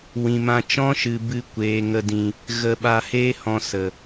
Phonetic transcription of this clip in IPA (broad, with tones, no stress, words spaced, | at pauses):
wĩ˨ mã˧ t͡ʃɔ̃˦ʃɨ˨ bɨ˧ kʷeː˨ŋə˧ dĩ˨ | ɣə˧ɓa˧heː˦hɔ̃˧ sə˨